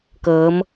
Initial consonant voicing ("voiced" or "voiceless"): voiceless